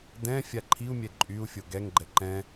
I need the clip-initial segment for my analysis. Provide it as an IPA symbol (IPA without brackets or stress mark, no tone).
d